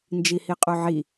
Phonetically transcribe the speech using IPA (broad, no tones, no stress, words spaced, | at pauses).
nd͡ʒihiqʼoʕi